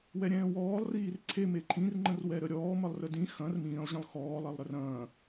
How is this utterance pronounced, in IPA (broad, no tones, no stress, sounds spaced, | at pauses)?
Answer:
w ɛ ɾʲ ɛ̃ː w ɔː lˠ r iː r ǀʰ e m e ǃʰ ĩ r ŋ͡ǃ ə̃ r w ɛ ɾ ə ɾʲ ɔː m ə lˠ r ə d ĩ x ɐ̃ r m ĩː lˠ ʑ ə̃ lˠ x ɔː lˠ ɛ lˠ ɾ ə r ɐ̃ː